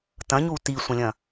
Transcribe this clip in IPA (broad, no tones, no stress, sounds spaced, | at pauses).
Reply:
t ɐ̃ ɲ u t i sʷ ɐ̃ lʲ ɐ̃